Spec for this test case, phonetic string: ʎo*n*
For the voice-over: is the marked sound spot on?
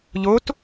no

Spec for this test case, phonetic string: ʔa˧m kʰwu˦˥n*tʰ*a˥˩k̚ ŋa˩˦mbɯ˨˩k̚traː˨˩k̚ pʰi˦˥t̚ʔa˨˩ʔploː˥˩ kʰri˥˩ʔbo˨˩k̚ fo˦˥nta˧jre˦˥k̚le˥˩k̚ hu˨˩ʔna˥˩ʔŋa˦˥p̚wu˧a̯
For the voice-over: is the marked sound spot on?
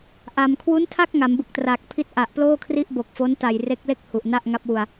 yes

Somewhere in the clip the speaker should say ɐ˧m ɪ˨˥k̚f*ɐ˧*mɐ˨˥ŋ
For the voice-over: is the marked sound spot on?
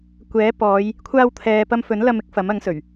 no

